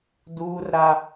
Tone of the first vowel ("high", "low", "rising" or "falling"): high